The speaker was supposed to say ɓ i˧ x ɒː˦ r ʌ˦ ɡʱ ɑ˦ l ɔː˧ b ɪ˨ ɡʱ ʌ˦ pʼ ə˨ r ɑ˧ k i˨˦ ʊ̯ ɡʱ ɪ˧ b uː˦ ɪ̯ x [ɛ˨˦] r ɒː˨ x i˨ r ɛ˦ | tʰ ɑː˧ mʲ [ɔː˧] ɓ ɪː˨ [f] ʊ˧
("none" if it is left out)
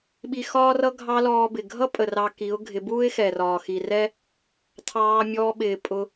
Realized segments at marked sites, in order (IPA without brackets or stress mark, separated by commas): ɛ˨, ɔː˧, pʼ